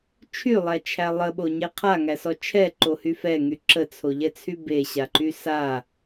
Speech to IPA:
t͡ʃʰylˠæt͡ʃʰæ lˠəɓoɲe qʰaŋæsɔ t͡ʃʰɛǃohy fɛŋy ǁət͡sʰoʎɛt͡sʰy beɕaǃy sa

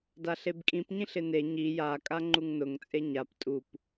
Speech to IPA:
daɬebkʼĩp ɲĩɬɪne ɲi ja kʼaŋ͡ǃuŋnʊŋ t͡sʼeɲap tʼup

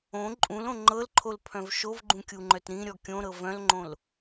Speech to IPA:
õ ǃʼũlõ ŋ͡ǃɤlǃʰolpʰœ̃v ʃovɡ͡ǃũkʲuŋ͡ǃœt ɾĩɾʲɔ kʲõɾɤ vœ̃lŋ͡ǃõl

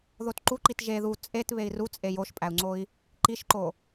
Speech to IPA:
ðotǃuǃit ʒe ðu t͡sʼet βei̯ru t͡sʼejoʃpʼæu̯ŋ͡ǀoi̯ | ǃiʃǃo

